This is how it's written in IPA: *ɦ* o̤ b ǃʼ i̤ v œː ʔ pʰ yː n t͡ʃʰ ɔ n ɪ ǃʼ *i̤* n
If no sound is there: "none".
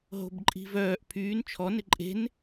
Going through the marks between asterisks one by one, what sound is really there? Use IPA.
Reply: ɦ, e̤

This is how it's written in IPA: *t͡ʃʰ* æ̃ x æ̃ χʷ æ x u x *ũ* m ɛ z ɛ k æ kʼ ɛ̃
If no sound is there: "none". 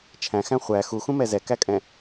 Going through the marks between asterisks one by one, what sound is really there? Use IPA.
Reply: t͡ʃʰ, ũ

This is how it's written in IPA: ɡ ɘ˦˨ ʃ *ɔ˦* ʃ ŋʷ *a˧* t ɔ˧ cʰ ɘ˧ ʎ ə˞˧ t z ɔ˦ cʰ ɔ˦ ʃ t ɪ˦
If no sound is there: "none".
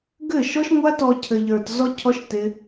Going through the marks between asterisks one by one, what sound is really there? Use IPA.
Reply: ɔ˦, a˦

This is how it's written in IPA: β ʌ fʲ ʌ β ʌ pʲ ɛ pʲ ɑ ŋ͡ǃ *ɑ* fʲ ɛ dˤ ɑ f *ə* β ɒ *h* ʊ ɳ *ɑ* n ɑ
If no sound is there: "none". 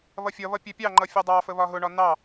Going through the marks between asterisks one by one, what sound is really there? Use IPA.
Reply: ʌ, ə, ɦ, ɒ

